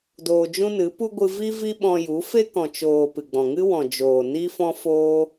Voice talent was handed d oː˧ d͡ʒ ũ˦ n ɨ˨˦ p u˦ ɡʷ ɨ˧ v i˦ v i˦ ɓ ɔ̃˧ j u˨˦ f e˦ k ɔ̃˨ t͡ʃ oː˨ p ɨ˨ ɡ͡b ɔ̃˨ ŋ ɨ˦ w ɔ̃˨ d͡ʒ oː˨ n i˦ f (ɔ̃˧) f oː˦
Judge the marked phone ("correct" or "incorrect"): incorrect